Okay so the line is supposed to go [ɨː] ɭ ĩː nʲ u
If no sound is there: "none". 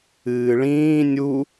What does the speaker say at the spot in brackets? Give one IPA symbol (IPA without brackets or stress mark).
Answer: ɨː